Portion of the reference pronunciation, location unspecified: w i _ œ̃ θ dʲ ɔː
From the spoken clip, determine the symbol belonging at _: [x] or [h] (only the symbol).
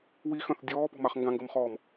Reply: x